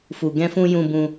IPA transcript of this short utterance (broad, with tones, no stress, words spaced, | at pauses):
fu˧ ɡɛ̃˧fũ˧ jũ˧bũ˧